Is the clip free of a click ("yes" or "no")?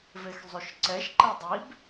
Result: no